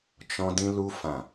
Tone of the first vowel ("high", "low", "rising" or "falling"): high